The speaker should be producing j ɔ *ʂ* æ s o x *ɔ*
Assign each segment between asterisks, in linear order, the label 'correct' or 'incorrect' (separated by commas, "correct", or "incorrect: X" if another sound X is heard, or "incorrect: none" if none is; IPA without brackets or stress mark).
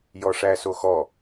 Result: correct, correct